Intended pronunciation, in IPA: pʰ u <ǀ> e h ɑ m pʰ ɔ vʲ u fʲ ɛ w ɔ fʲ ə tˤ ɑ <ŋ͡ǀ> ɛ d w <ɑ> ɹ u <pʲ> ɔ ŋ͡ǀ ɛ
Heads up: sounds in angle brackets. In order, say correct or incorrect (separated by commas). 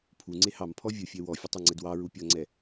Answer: incorrect, correct, correct, correct